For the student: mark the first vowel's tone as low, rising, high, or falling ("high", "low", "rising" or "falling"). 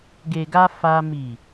low